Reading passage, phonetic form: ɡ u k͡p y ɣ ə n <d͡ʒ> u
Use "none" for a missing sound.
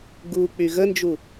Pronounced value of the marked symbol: d͡ʒ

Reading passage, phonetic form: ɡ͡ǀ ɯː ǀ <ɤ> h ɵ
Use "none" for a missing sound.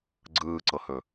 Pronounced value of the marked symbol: ɤ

